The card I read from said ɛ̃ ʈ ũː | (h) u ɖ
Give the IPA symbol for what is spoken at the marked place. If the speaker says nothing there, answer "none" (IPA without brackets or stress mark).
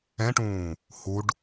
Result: h